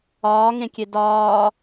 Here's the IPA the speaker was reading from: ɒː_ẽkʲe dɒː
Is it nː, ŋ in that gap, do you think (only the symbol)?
ŋ